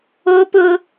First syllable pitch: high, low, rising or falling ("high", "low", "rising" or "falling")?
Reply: high